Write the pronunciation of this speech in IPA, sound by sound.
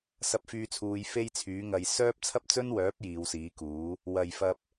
s ɐ˧ p̚ f yː˧ t͡sʰ uː˨˧ j f e˥ j t͡sʰ yː˨˥ ŋ ɐ˧ j s œː˥ p̚ t͡sʰ ɐ˥ p̚ t͡s ɵ˥ n w œː˨˥ p̚ j iː˨˧ w s iː˨˥ k uː˨˥ | w ɐ˨ j f ɐ˧ p̚

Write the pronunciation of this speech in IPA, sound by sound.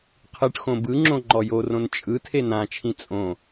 qʰ ɯ ʈ x õ b ɯ ŋ͡ǁ õ ŋ͡ǃ ɔ j o r õ n t͡ʃʼ ɯ tʰ e n ã t͡ʃʰ ĩ t͡sʼ õ

